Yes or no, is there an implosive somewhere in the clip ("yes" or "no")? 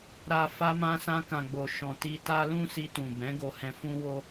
no